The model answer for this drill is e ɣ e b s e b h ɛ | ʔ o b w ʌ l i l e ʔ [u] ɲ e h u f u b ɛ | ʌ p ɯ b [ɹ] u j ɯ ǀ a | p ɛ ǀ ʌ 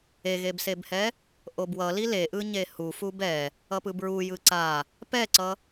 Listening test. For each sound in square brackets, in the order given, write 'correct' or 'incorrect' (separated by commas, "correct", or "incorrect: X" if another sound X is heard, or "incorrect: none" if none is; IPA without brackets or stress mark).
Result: incorrect: ɯ, correct